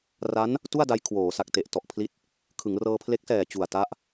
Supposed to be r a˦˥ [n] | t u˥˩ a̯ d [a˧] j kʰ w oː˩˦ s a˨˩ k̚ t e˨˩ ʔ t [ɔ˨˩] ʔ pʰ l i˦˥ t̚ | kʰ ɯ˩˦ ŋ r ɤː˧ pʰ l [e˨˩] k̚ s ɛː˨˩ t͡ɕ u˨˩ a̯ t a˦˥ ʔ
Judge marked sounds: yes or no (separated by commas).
yes, yes, yes, no